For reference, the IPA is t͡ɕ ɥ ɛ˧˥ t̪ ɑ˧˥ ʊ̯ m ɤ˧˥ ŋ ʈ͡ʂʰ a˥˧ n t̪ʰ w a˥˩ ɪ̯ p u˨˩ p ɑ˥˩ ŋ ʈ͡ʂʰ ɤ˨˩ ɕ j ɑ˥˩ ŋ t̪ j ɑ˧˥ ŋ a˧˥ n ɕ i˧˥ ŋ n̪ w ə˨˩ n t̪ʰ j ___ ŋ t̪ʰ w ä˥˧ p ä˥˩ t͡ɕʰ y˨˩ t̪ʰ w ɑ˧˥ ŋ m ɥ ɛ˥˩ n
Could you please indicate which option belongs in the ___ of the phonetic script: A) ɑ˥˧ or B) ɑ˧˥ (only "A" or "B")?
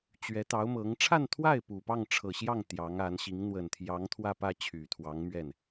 B